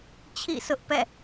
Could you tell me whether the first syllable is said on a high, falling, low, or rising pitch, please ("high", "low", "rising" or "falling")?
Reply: falling